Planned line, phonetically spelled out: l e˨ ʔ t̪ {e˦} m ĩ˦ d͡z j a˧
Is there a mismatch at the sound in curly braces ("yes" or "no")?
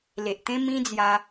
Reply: yes